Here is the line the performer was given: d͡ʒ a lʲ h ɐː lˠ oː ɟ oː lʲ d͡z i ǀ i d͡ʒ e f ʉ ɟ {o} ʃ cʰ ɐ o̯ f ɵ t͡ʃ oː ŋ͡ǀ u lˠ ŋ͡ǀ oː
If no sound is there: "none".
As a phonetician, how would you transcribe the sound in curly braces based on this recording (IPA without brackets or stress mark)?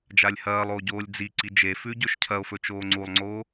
ɵ